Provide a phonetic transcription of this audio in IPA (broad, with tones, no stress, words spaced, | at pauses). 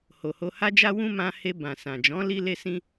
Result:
ho˨ho˧ha˦d͡ʒa˦ wũ˦ mã˧he˧ bã˨sã˨d͡ʒɔ̃˨˦ li˦le˦sĩ˦